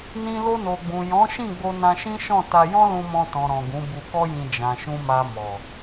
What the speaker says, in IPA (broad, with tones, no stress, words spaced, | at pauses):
nĩ˧lo˧no˨ɡ͡bũ˨ jɔ̃˨˦ʃĩ˦˨ɡ͡bo˧ nã˧ʃĩ˦ʃɔ̃˦˨ ta˧jɔ̃˦lũ˧mɔ̃˧ tɔ̃˨ ɾɔ̃˨ɡũ˨˦ bu˧kɔ˦jĩ˧ d͡ʒã˨ʃũ˧ma˧ mɔ˨